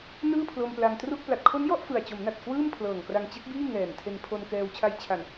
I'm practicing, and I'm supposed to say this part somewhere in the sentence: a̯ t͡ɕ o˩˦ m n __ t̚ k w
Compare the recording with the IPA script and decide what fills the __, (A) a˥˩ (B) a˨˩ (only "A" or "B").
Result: B